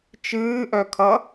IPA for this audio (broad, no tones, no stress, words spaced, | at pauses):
t͡ʃɨːʔœkʰʌ